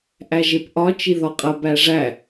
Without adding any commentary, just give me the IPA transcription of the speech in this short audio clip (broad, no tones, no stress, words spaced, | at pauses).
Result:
ʔæʒepʔɒ t͡ʃiðɒqʼɐ bæʐæ